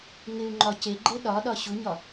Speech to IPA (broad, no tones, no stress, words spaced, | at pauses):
ŋɪu̯ŋ͡ǃɒ ceɡ͡ǃe ɗɒɗɒ ɕuɲɒ